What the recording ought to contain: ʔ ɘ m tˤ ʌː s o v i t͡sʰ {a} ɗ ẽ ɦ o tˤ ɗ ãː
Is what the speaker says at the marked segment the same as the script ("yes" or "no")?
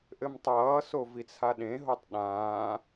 yes